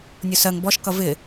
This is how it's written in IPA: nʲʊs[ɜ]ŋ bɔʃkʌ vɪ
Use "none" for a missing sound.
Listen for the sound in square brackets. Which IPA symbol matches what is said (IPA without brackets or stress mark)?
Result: ɜ